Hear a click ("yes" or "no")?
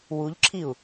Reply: yes